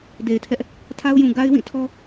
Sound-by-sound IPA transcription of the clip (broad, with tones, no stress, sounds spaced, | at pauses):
d e˨ ɪ̯ tʰ ɛ˦ ʔ | tʰ a˦ ʊ̯ j ũ˨ ɡ a˦ ɪ̯ w ĩ˦˨ tʰ ɔ˦